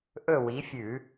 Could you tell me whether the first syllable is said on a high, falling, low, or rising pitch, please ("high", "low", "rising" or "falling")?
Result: falling